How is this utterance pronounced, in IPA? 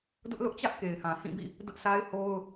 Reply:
d ʊ˦ ʔ l ʊ˦ ʔ t͡ɕ ä˦ ʔ k e˨ ɪ̯ h ã˨ h ĩ˦˨ b ḭ˦˨ | d ʊ˦ ʔ s a˦ ɪ̯ h o˦ ʊ̯

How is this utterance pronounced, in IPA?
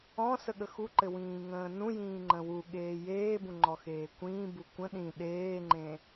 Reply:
ɔ̃ s ə ɠ ə x u ǃ ɘ w ĩː ŋ ə̃ː n ũ j ĩː ŋ͡ǃ ə̃ w u ɠ eː j eː b ũ ŋ͡ǃ ɔ x eː kʷ ĩː b u kʷ ə̃ ɗ ĩ ɗ eː ŋ͡ǃ ẽ

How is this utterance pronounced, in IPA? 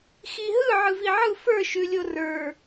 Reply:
x i ɦ ɯ ʕ ɯ v i ʕ ɯ f ə˞ ʃ ʉ lʲ o r ə˞

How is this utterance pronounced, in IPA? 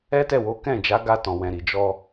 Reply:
ɛ˦ t ɛ˦˨ w o˨˦ k ɛ̃˦˨ d͡ʒ a˨˦ ɡ a˧ t ɔ̃˨ w ɛ̃˨ ɾ i˨ d͡ʒ ɔ˧

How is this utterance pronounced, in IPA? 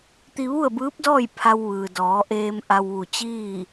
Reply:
t̪ i˧ ʋ u˥˨ ə̯ b ɯː˧˥ p̚ d ɔː˥˨ j pʰ a˧ w ʋ ɯː˩ d ɔː˩˧ ʔ eː˧ m ʔ a˧ w ʋ u˧˩ t͡ɕ iː˥˨

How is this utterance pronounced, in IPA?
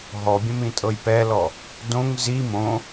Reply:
ɦ ɔ bʲ ə̃ m ĩ tʼ ɤ j p ɛ l ɔ | d õ ŋ z i m õ

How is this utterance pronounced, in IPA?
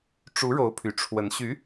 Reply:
ʈ͡ʂ u˧˥ ɻ o˧˥ ʊ̯ pʰ y˨˩ ʈ͡ʂʰ w ə˧˥ n ɕ y˧˥

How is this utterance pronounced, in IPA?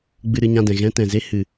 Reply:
ɡ͡b ɨ˧ ɾ ɨ˧ ɲ ã˧ d ɛ̃˨ ɣ ɛ̃˧ t ɛ̃˨ z e˦ h ɨ˧

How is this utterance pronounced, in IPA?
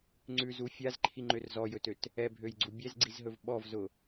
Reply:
ŋ͡ǀ ʉ z u fʲ a z ǃʰ i ŋ͡ǃ ø r z ɔ j ɵ t ø t | ɛ bʱ ø j ɡ͡ǀ u bʲ ɛ z ɡ͡ǀ i z ɦ ɵ v ɓ ɔ v z ʊ

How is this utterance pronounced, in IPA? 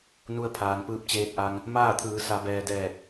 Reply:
n u˧ ə̯ pʰ aː˩ n p ɯː˧ p̚ t͡ɕ eː˧ t̚ ʔ a˧ ŋ | m aː˥˨ t̪ʰ ɯː˩˧ s a˩˧ b ɛː˩ d ɛː˧˩ k̚

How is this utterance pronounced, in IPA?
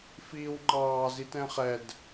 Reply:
f iː w ŋ͡ǃ ɑː z i t ɛ̃ χ ɛ d

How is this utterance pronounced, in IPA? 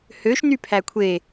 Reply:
h ø ʃ n y pʰ æ kʷʰ e

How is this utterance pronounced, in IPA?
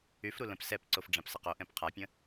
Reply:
y f ɾ u l ə̃ p s ɛ p ǀ o f ɖ͡ʐ ã p s ə q o ʔ ɛ̃ p qʰ a pʲ ə̃

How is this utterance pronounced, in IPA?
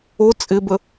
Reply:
o t͡sʼ ɪ b ə

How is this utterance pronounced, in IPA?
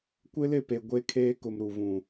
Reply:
kʷ ɪ˦ l ɪ˦˨ p e˨ ɡʷ e˦ kʰ eː˦ k ʊ˨ m ɾ u˨ v ũ˨

